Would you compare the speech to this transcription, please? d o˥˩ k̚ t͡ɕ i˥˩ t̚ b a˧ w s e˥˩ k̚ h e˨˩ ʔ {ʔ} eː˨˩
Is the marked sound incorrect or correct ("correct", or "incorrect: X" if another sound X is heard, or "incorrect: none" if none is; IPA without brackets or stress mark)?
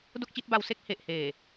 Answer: incorrect: h